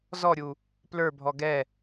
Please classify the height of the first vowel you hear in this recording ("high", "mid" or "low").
mid